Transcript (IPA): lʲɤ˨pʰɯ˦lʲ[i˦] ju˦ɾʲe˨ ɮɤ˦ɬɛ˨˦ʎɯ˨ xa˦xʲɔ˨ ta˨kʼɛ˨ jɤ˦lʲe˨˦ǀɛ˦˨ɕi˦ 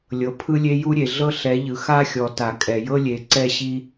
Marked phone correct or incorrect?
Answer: incorrect